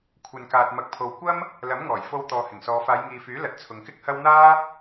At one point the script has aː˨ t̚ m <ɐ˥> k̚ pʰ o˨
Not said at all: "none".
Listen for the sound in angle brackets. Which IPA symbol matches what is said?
ɐ˨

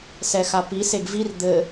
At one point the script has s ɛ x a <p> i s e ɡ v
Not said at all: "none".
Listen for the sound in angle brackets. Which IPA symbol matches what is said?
p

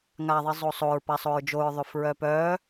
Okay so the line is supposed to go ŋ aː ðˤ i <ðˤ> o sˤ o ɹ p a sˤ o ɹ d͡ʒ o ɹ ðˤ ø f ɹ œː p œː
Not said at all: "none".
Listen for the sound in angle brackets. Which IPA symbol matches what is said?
zˤ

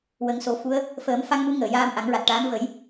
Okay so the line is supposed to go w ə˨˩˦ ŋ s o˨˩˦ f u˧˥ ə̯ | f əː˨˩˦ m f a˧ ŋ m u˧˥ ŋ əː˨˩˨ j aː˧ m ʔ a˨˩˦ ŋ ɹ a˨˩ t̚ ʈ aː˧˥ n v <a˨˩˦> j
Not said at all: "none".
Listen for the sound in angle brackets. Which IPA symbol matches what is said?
ə˨˩˦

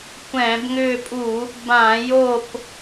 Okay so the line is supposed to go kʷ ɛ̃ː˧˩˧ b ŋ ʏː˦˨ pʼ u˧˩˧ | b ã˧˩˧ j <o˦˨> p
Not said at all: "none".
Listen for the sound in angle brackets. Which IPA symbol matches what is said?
o˦˨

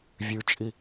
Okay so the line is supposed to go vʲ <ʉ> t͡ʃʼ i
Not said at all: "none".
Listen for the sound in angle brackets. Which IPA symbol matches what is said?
ʉ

